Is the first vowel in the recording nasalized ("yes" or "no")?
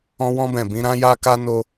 yes